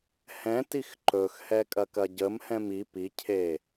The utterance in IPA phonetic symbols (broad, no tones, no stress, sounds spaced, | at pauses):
h ɛ̃ t i x ǃ ɵ x h ɛ kʼ ɐ k ɐ ɟ ə m h ɛ̃ m i p i cʰ e